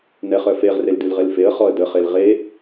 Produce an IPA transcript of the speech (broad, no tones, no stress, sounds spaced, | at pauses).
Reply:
n ɛ χ œ f e ʁ r e l d ʉ l ʁ e l f e ə̯ χ ɔ ə̯ d ə χ e l ʁ e